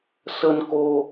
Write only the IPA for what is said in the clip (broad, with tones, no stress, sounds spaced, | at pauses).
s ə˧ n k o˧